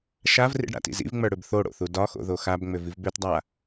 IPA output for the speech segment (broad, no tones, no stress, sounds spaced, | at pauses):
ʃ a v r ḭ ɖ ɽ a̰ t ḭ z ḭ v ŋ͡m ə˞ ɽ ʏ b θ o ɽ o̰ θ u d ɒ x o̰ ð o x a b ŋ͡m ʏ v i v b ø t dˤ a